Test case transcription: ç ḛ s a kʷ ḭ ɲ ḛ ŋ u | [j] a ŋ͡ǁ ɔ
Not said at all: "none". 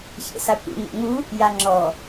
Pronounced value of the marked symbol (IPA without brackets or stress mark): j